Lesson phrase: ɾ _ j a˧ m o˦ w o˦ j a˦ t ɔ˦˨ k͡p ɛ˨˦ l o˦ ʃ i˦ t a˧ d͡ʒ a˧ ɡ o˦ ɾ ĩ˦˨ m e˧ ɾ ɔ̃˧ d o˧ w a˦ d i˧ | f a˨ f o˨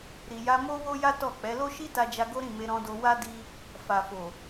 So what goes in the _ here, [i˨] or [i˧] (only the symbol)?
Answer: i˨